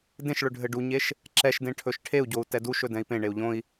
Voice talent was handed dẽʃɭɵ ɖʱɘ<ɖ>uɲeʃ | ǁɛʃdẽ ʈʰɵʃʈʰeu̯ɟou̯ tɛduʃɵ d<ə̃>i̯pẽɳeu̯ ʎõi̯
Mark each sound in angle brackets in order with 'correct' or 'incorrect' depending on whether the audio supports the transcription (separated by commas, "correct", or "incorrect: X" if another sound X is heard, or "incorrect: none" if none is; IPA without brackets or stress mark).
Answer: correct, incorrect: ɛ̃